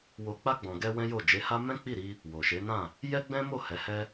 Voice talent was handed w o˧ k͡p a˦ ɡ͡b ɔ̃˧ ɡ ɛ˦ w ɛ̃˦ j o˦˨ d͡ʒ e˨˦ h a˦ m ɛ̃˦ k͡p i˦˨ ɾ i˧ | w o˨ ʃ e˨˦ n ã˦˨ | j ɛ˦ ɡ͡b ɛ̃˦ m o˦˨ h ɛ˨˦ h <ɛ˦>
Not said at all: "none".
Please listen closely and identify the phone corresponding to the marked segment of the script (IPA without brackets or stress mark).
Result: ɛ˦